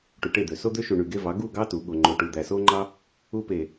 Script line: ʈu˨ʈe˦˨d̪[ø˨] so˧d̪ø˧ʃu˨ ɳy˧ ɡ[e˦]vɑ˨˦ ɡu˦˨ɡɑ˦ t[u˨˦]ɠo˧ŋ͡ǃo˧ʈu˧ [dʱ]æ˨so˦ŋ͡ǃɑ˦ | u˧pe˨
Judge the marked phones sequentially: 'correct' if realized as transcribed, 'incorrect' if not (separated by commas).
correct, correct, correct, incorrect